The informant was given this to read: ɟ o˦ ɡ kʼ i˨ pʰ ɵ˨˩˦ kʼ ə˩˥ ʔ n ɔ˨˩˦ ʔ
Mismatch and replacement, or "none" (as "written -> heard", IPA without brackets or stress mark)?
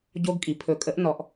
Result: none